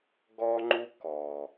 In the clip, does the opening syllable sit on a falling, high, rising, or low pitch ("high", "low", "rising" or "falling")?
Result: high